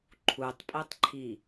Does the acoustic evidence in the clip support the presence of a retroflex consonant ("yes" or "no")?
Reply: no